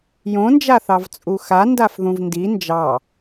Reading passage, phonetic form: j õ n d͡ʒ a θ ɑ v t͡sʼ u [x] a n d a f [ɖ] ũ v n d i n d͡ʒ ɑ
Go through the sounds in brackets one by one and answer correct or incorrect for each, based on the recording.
correct, incorrect

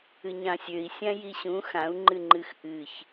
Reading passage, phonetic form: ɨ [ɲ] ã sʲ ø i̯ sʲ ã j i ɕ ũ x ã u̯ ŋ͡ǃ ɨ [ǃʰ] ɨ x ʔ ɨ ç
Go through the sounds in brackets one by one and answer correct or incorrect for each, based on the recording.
correct, incorrect

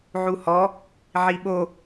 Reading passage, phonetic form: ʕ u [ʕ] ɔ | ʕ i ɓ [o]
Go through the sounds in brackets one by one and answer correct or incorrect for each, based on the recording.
incorrect, correct

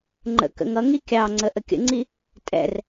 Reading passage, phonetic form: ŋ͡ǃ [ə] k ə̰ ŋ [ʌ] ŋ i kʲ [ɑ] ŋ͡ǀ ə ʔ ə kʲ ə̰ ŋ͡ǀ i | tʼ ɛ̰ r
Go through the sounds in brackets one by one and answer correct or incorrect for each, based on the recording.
incorrect, correct, correct

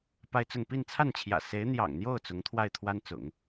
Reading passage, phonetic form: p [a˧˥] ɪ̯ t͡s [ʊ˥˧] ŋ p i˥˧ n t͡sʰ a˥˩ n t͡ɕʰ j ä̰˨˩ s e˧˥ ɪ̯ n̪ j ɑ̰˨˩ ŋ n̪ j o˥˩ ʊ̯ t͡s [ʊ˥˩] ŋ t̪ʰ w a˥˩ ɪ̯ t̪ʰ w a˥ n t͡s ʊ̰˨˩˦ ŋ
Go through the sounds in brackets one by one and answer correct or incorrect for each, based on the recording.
incorrect, correct, incorrect

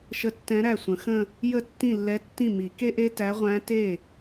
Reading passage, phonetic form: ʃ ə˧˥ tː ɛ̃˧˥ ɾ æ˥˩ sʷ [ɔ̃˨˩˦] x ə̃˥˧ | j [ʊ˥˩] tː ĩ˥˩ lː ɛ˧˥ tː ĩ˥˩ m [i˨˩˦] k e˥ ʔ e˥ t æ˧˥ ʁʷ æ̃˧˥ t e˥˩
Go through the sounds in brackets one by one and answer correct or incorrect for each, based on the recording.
incorrect, incorrect, correct

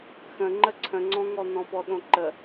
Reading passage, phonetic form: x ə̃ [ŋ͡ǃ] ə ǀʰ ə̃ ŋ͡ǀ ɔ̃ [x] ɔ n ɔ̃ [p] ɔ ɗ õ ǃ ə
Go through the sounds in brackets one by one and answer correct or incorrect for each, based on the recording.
correct, incorrect, correct

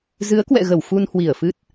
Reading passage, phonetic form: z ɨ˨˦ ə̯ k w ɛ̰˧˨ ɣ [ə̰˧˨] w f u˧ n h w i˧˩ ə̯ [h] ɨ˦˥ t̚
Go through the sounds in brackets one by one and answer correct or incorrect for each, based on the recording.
incorrect, incorrect

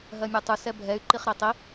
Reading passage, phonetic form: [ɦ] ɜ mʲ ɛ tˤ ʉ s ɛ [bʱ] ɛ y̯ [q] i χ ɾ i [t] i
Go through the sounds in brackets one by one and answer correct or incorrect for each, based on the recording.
correct, correct, incorrect, incorrect

